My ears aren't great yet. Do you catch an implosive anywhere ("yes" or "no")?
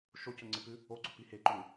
no